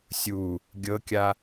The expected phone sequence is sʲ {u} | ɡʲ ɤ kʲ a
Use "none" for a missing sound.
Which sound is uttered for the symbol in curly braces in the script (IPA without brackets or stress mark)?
u